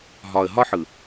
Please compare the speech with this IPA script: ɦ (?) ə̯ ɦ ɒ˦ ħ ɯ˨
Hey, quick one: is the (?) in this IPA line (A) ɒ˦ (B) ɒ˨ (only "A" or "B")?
B